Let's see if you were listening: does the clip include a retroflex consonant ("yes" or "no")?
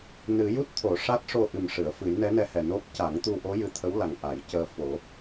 yes